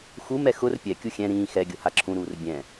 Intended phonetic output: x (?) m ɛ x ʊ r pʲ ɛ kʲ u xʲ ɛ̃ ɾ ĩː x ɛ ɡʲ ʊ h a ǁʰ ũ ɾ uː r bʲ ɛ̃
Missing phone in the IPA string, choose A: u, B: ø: A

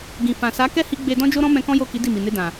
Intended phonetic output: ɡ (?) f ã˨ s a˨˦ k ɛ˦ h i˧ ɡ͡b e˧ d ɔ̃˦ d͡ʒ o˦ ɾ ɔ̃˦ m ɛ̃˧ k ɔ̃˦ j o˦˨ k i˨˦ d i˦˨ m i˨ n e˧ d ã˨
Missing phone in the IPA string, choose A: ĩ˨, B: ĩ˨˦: A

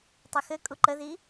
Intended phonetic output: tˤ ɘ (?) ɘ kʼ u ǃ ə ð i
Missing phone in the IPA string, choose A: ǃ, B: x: B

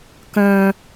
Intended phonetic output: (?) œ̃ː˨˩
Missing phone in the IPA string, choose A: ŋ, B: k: B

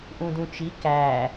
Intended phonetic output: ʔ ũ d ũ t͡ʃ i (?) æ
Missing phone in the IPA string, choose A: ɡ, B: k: B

